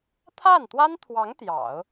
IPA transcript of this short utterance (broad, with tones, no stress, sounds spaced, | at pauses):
t̪ʰ a˥˩ n t̪ w a˥ n t̪ʰ w ɑ˧˥ ŋ t̪ j ɑ̰˨˩˦ ʊ̯